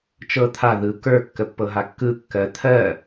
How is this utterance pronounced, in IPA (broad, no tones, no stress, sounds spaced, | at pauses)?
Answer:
t͡ʃ ɤ t̪ʰ a ð ɯ k ə˞ kː ə pː ɤ ɦ a kː ɯ kː ɜ t̪ʰ ɜ